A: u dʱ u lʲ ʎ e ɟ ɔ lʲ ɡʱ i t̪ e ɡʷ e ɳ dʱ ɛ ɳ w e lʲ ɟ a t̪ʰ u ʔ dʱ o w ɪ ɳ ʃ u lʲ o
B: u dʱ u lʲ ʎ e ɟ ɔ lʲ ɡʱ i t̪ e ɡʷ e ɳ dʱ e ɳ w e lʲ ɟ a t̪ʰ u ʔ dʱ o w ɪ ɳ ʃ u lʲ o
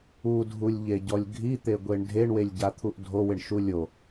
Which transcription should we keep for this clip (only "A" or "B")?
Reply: B